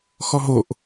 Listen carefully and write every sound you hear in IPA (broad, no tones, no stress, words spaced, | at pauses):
xɔɦoʔ